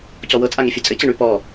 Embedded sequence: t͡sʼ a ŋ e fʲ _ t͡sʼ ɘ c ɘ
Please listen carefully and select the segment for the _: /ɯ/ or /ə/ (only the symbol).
ɯ